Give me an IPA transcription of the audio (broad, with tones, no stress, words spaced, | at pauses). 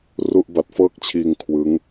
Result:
ru˥˩ʔba˦˥t̚fɤː˥˩k̚t͡ɕʰiː˧ŋ kʰwɯ˦˥ŋ